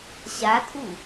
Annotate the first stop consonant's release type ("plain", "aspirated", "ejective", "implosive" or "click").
ejective